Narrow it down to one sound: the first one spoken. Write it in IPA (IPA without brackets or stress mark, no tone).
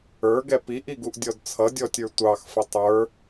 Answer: ə˞